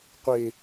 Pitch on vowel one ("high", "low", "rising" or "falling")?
low